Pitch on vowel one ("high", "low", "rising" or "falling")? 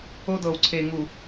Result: high